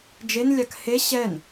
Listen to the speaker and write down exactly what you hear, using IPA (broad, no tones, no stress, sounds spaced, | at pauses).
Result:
d͡ʒ e n lʲ a k h e ɕ ɛ n